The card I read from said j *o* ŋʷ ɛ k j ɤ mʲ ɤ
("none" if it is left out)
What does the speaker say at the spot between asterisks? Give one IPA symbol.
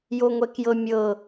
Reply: o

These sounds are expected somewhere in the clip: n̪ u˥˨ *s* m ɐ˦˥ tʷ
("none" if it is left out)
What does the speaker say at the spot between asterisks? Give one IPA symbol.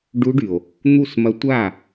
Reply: s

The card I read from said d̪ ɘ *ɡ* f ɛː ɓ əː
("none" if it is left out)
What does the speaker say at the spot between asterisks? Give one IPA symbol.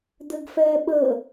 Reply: ɡ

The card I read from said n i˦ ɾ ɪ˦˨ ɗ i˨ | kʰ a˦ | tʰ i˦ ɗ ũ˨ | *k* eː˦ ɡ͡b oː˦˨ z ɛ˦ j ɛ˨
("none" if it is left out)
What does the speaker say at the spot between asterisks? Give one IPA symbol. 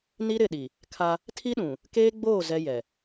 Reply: k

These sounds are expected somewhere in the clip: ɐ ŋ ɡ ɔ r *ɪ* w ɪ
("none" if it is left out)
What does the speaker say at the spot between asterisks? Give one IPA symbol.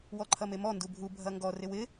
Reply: ɪ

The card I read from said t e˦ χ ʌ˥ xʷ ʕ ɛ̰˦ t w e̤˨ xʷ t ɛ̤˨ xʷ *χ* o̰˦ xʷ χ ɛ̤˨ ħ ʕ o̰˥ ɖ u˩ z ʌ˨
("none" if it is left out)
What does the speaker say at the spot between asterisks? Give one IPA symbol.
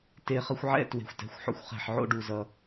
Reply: ħ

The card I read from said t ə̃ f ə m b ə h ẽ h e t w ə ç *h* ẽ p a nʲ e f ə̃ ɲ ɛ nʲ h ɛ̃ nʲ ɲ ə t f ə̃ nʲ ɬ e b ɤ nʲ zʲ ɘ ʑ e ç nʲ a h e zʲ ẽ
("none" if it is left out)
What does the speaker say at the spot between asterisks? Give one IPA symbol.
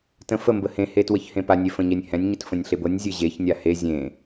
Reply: h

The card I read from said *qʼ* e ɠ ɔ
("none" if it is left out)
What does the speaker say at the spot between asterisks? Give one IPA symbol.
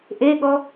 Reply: ʔ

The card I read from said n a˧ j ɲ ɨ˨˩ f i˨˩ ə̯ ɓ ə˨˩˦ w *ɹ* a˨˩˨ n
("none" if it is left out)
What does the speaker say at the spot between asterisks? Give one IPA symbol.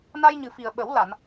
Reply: l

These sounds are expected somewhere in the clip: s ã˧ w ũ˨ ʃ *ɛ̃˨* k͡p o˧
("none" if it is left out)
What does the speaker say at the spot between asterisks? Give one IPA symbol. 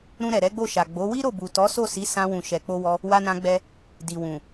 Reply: ɛ˨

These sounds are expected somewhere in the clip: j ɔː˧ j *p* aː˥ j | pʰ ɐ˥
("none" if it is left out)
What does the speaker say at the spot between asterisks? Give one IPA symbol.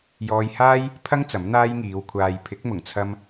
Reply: h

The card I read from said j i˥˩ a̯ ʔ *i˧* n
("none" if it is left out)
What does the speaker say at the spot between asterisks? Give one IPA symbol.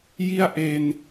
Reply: e˧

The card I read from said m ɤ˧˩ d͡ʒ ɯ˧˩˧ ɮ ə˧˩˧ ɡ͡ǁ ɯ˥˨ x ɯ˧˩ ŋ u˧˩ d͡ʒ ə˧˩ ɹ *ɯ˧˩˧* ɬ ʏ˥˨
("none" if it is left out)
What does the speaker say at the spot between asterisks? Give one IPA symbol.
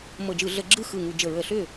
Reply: ə˧˩˧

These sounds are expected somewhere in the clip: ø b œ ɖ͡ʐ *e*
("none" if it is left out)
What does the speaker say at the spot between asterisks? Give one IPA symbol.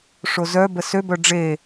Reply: e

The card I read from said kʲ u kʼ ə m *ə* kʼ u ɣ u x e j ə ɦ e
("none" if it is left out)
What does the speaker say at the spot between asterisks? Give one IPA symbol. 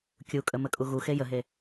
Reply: ə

